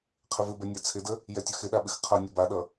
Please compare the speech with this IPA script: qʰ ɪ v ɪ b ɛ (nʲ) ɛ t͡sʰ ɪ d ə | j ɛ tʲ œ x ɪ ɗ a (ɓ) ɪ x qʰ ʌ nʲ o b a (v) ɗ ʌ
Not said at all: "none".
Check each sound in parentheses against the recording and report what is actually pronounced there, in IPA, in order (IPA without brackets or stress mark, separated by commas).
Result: nʲ, ɓ, none